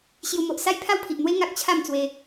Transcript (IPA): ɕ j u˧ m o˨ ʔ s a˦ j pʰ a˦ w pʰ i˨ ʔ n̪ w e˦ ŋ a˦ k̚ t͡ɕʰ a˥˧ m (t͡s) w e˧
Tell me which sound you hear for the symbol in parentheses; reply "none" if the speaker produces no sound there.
t͡s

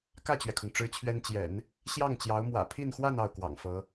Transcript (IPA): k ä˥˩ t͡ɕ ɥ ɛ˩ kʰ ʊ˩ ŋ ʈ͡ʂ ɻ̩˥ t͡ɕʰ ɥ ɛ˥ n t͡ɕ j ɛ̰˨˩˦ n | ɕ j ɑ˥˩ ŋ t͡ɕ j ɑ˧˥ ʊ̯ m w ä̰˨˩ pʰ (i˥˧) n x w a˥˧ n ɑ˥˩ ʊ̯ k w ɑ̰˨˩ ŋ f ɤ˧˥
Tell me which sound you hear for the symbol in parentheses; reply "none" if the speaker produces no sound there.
i˥˧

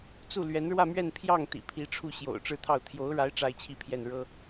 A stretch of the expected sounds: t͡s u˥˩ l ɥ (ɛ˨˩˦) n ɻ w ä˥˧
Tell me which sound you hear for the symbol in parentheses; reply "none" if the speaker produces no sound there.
ɛ˧˥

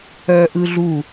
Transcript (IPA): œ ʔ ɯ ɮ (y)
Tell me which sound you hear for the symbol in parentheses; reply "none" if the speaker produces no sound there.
u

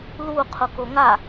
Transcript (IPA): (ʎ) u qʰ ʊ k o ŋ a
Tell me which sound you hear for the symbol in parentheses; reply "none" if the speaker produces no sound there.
l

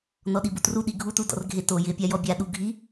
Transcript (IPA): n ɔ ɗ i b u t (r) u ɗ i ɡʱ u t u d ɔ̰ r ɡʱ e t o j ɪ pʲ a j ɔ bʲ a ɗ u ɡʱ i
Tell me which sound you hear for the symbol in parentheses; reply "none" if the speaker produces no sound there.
r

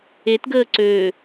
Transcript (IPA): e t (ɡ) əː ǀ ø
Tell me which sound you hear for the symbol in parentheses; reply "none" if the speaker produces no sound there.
ɡ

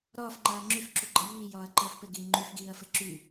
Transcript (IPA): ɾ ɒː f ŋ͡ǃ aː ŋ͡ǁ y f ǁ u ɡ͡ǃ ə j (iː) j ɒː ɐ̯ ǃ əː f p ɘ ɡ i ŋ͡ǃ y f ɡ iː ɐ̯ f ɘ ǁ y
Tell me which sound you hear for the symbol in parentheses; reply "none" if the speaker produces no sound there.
iː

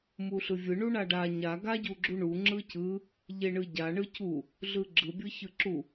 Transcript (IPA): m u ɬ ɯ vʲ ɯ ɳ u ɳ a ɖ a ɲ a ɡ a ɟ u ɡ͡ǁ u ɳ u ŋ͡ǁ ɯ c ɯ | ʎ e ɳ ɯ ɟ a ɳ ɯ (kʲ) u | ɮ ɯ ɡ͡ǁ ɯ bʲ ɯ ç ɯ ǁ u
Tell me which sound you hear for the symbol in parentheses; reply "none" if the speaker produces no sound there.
c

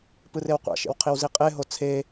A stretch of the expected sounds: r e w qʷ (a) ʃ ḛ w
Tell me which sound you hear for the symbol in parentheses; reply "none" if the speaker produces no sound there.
a̰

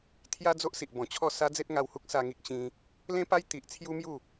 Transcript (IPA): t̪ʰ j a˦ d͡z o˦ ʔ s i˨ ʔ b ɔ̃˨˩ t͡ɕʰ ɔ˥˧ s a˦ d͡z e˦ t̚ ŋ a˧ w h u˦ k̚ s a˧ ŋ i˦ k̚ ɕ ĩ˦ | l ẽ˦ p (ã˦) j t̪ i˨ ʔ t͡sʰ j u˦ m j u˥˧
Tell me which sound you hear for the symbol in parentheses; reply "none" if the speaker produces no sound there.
a˦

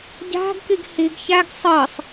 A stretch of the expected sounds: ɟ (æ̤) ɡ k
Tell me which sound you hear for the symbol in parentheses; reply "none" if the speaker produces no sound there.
æ̤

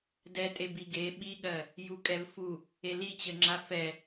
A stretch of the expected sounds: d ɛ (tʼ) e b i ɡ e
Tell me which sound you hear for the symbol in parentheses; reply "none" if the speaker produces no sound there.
tʼ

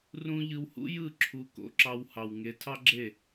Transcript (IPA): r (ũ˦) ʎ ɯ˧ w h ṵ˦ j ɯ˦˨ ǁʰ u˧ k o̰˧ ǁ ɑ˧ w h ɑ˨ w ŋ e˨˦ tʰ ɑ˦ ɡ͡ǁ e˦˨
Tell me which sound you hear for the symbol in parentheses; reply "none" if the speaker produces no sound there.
ũ˦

